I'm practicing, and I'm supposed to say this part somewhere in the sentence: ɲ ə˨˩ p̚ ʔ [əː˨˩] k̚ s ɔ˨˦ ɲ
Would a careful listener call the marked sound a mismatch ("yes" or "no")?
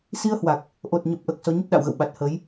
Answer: no